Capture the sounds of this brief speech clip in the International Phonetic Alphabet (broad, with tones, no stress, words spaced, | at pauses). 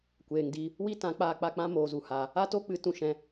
kʷeː˨ŋdi˧ | wi˦tã˨˦ k͡paː˧k͡pa˦˨k͡pã˦ moː˧zu˧ha˧ | a˦to˦k͡pɨ˨˦ tũ˧ʃɛ̃˧